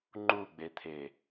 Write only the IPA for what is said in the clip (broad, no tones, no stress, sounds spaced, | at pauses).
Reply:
ŋ͡ǃ u ɡ͡b e t̪ʰ e